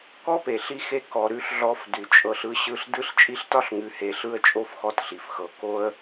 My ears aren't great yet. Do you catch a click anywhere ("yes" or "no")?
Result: no